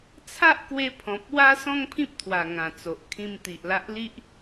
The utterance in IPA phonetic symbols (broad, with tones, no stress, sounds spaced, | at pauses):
t͡sʰ a˦ ʔ k w e˧ pʰ ɔ̃˨ p̚ w a˦ s ɔ̃˦ ŋ pʰ ĩ˦ p̚ t̪ʰ w a˨˩ ŋ ã˨˩ t͡s o˨ ʔ kʰ ĩ˧ m t̪ i˨ ʔ l a˦ ʔ l i˦ ʔ